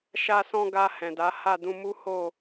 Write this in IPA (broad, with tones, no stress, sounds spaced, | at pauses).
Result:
ʃ a˧ s ɔ̃˧ ɡ a˧ h ɛ̃˨ d a˨˦ h a˦˨ d ũ˧ m u˦ h o˦˨